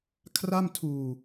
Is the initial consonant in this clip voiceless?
yes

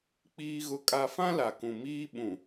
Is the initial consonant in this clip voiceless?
yes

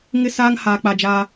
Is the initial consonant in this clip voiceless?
no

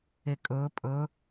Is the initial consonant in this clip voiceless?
yes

